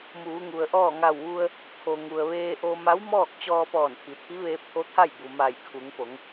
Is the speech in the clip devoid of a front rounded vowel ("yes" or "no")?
yes